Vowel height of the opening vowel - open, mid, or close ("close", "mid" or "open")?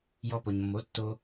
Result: mid